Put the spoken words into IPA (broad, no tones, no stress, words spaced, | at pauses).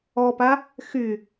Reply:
ɔpa | xy